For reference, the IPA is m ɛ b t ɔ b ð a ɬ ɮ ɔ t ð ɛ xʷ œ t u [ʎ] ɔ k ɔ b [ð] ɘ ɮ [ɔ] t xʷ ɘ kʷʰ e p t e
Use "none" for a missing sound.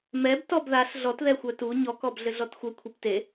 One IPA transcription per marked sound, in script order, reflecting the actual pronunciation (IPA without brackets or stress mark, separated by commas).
ɲ, ɮ, ɔ